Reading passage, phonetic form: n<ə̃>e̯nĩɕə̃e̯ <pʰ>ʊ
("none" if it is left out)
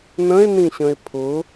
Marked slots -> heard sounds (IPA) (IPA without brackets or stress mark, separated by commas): ə̃, pʰ